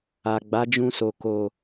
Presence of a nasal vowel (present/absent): present